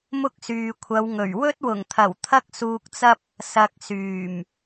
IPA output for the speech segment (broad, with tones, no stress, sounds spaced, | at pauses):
m ʊ˥ k̚ s yː˨ kʷʰ ɐ˨˧ w ŋ ɵ˨˩ ɥ w ɵ˥ t̚ w ʊ˨˩ ŋ t̪ʰ ɐ˨˩ w t̪ʰ ɐ˥ k̚ s uː˧ k̚ t͡s ɐ˥ p̚ | s ɐ˨ k̚ s yː˨˩ m